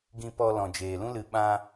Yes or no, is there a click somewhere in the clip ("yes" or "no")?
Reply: no